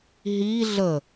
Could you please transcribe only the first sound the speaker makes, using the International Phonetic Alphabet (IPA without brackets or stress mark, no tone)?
ɦ